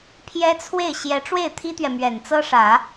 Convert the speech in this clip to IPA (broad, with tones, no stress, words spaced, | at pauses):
pʰjɛ˥t͡sʰwe˥˩ɪ̯ ɕjɛ˧˥ʈ͡ʂwe˥˩ɪ̯ t̪ʰi˥t̪ɥɛ˨ mɥɛ˨˩nt͡sɤ˥ʂä˨˩˦